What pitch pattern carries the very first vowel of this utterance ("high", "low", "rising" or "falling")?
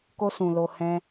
high